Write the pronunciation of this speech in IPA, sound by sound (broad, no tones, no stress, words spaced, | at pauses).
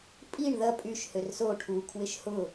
pʼiɳ ðɐ pʼyʃ hørso ʈʰu kʰwɪʃhʊ